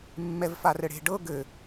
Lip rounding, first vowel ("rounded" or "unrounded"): unrounded